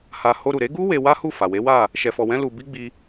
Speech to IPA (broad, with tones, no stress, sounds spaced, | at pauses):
h a˧ h o˧ ɾ u˨ ɾ e˨˦ ɡ u˦ w e˧ w a˦ h u˦˨ f a˨ w e˨˦ w a˦˨ | ʃ ɛ˧ f ɔ˧ w ɛ̃˦ l u˧ b i˦ ɡ͡b i˧